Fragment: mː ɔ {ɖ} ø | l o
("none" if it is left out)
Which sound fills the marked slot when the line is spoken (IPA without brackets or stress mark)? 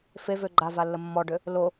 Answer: ɖ